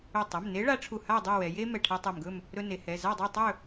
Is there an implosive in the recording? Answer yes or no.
no